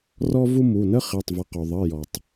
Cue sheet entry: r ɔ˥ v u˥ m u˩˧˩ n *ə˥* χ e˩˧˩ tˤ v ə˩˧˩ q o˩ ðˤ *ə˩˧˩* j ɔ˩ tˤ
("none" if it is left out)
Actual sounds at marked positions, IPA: ə˥, ə˩˧˩

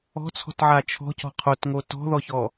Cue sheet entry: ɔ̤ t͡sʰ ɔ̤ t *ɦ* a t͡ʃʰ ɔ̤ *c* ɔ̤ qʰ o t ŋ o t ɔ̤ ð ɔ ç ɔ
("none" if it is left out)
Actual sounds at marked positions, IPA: ʕ, c

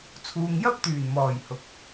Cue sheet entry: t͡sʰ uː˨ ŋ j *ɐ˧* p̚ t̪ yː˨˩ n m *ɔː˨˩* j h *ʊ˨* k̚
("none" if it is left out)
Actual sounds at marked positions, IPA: ɐ˥, ɔː˨˩, ʊ˨

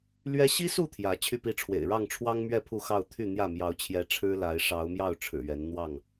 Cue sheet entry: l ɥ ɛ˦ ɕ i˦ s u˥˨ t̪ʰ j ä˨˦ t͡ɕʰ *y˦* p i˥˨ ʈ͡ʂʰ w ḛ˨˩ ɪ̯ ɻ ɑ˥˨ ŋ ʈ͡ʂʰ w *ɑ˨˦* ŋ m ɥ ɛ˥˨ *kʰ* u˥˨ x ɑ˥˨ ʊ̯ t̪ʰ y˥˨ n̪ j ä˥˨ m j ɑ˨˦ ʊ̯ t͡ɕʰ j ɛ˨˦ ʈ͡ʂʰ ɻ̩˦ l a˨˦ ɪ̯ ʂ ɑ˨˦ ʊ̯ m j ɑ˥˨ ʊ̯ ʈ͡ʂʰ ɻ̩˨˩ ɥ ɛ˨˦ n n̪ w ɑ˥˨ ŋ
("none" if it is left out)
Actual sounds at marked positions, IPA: y˥˨, ɑ˦, pʰ

